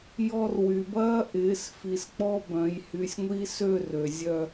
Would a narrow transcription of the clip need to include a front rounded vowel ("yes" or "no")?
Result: yes